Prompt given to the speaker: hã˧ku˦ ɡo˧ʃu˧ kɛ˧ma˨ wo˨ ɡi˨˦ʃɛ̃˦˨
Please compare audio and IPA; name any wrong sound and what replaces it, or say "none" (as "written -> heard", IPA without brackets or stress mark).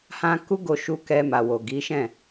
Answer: none